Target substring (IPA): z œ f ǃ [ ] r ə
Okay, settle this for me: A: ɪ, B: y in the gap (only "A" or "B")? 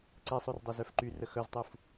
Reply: B